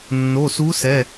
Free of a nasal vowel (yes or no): yes